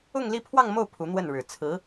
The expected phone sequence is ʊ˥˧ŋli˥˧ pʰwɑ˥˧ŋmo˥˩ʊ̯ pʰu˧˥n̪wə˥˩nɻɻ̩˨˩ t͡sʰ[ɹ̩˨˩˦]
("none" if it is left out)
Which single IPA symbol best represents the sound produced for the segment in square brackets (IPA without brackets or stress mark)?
ɹ̩˧˥